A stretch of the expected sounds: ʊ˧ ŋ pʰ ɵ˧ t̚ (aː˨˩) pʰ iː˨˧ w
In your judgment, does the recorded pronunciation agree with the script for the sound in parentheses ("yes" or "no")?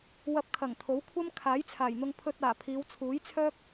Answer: yes